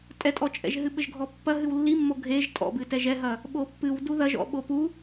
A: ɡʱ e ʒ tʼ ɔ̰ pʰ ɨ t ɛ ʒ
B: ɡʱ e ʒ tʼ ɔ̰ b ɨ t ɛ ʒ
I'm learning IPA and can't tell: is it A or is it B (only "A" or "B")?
B